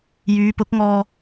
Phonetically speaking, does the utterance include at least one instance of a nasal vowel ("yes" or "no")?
no